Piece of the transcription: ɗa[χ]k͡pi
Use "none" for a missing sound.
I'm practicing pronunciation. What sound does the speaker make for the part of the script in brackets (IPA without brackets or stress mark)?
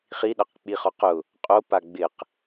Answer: q